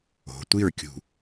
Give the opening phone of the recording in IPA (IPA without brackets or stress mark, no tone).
o̤